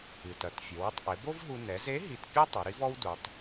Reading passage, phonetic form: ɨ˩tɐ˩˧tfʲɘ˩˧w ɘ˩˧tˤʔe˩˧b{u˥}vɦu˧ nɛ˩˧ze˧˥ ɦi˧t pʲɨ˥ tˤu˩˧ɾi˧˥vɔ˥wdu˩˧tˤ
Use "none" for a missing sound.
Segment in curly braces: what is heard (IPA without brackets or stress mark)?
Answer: o˥